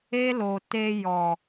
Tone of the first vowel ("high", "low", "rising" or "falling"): high